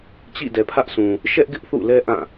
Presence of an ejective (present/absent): absent